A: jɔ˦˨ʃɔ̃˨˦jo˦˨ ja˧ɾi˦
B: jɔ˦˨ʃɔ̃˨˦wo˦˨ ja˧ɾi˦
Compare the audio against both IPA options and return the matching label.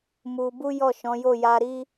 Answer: A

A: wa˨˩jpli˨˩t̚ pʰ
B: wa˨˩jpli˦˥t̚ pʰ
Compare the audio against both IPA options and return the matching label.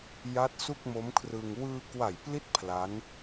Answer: B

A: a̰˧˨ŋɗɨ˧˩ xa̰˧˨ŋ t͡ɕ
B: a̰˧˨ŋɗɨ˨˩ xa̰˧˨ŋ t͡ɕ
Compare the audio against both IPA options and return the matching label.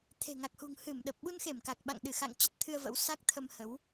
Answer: A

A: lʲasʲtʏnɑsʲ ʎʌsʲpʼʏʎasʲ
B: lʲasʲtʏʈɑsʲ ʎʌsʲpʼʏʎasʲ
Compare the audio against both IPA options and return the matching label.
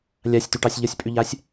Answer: B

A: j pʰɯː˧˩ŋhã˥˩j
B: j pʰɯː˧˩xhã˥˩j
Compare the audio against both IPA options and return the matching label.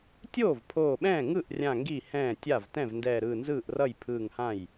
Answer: A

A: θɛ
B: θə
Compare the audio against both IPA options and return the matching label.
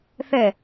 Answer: A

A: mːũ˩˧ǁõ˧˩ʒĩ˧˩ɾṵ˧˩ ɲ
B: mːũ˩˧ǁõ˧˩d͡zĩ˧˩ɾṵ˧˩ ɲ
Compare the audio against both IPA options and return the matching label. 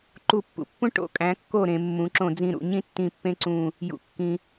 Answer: B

